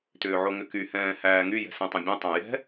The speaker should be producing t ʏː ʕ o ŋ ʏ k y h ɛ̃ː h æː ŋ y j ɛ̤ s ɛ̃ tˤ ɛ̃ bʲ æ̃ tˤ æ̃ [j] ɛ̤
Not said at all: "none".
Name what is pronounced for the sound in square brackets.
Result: j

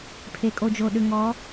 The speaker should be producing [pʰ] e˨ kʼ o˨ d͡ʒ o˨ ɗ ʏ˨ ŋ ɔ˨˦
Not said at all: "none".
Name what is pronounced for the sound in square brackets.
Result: pʰ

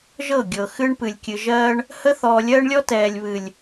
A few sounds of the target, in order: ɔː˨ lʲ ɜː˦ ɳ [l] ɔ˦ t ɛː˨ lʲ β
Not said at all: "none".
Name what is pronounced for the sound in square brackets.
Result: lʲ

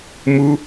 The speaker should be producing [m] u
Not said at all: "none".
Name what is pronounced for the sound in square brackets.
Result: m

